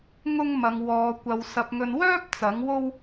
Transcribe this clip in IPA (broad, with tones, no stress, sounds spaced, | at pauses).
ŋ ʊ˥ ŋ m ɐ˨˧ ŋ w ɔː˨˧ kʷ ɐ˨˧ w s ɐ˧ p̚ ŋ ɵ˧ n w œː˥ p̚ t͡s ɐ˨˥ ŋ w o˥ w